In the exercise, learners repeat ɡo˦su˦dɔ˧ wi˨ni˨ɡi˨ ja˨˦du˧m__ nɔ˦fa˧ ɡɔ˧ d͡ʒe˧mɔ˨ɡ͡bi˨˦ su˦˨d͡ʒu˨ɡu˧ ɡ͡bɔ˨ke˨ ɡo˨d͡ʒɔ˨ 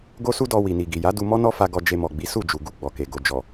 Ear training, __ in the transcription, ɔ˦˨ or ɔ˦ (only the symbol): ɔ˦